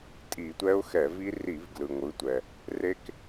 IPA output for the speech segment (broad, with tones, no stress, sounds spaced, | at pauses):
tʼ i˧˩˧ tʷ ɛ˦˥ ʊ̯ x ɛ˧˩˧ v i˦˥ r i˧˩˧ v ɡ l ɯ˩ ŋʷ ɯ˩˧ tʷ ɛ˩ | r e˦˥ k